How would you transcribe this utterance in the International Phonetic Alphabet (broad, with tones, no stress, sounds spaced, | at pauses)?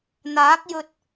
n̪ aː˨˥ k̚ j ɵ˧ t̚